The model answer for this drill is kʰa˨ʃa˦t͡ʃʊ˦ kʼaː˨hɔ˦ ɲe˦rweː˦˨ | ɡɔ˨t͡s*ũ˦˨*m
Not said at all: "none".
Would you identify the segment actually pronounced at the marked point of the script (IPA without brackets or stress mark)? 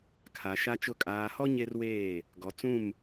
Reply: ũ˦˨